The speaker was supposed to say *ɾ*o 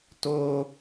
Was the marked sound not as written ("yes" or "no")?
yes